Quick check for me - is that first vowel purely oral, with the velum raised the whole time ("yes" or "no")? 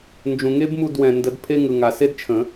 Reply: no